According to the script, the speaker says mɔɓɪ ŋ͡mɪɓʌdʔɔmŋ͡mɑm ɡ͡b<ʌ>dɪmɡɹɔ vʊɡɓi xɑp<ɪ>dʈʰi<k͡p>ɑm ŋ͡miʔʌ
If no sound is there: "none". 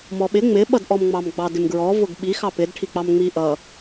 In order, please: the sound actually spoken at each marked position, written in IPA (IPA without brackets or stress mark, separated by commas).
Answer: ɑ, ɪ, k͡p